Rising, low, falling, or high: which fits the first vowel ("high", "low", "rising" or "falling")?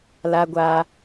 high